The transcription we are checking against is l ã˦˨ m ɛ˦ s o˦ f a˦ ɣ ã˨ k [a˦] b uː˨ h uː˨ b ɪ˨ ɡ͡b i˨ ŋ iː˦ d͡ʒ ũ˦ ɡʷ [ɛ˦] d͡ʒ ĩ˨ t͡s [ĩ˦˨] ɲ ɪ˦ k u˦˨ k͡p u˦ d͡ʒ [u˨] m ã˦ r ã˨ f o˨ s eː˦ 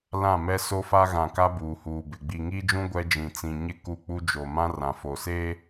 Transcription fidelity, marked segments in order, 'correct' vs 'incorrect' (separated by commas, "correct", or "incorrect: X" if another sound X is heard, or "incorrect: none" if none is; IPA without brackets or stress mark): correct, correct, incorrect: ĩ˨, incorrect: o˨